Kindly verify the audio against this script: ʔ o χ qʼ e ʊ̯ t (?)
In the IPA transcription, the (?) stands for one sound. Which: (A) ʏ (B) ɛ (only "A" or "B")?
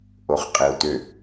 A